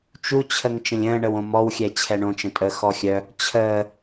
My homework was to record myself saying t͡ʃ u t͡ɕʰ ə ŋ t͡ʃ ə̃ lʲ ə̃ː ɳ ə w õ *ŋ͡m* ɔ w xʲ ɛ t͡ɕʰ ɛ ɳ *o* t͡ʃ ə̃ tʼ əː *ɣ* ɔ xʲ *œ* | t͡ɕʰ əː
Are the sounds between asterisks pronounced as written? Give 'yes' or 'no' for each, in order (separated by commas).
no, no, no, yes